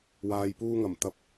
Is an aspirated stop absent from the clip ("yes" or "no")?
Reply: yes